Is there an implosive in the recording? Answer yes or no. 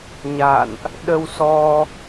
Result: yes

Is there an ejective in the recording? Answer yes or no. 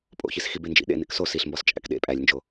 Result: yes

